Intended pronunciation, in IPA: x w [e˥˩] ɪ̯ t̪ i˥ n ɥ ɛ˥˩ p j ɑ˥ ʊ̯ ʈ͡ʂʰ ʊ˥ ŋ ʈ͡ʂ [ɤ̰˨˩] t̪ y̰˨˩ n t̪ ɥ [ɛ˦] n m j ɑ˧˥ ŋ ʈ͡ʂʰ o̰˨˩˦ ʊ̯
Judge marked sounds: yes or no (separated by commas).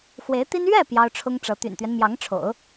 no, no, yes